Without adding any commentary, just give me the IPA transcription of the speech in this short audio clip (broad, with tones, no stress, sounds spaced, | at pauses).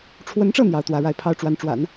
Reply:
ʈ͡ʂʰ w ə˧˥ n ʈ͡ʂ ɤ˥˩ n̪ j ɑ˧˥ ʊ̯ t̪ w ä˧˥ ɻ a˥˩ ɪ̯ pʰ ɑ˥ ʊ̯ ʈ͡ʂ w a˧˥ n ʈ͡ʂ w a̰˨˩˦ n